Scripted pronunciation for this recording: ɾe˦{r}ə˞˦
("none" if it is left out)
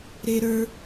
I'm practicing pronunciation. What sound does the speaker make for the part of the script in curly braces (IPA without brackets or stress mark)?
ɾ